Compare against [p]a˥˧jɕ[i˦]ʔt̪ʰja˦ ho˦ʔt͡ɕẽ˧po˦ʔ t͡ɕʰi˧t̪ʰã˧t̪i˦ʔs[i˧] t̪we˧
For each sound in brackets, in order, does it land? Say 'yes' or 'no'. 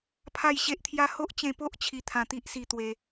no, no, yes

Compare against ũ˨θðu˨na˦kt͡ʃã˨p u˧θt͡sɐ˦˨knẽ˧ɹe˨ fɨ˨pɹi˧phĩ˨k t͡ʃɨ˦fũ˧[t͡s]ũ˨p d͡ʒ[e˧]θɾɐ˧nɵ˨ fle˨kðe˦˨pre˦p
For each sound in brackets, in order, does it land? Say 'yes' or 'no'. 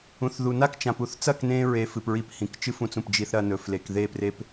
yes, no

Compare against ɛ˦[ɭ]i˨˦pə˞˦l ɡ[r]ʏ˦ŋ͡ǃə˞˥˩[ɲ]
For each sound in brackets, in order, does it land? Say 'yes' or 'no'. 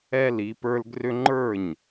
no, yes, yes

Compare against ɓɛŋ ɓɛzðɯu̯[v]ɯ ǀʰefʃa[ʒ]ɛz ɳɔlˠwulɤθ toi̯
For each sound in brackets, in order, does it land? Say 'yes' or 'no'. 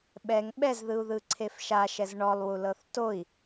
no, no

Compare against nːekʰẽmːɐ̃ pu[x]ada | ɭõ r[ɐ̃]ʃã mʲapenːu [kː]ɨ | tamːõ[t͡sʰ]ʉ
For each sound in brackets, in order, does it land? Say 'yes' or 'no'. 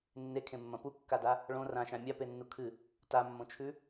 no, no, no, no

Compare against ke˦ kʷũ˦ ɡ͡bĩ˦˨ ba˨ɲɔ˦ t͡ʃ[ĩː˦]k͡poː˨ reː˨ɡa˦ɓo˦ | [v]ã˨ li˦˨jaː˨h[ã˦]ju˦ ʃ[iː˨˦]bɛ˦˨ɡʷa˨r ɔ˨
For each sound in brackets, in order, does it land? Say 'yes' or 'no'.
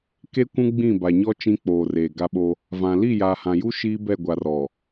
no, yes, no, no

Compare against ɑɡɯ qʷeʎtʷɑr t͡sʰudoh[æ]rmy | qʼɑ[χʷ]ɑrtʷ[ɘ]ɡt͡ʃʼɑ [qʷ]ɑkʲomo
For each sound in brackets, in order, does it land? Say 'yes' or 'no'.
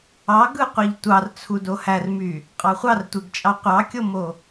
yes, yes, no, yes

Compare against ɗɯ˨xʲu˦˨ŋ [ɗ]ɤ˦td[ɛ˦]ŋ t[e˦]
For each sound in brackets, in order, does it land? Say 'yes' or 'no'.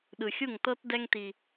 no, yes, no

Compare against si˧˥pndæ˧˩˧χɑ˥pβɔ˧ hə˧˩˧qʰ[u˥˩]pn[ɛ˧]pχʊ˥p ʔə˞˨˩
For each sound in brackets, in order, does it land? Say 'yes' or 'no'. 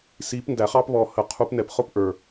no, yes

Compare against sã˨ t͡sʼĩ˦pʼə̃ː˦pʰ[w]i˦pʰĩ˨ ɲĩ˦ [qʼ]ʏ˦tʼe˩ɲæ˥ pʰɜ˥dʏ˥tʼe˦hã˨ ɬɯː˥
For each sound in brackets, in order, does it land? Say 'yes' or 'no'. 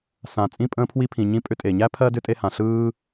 yes, no

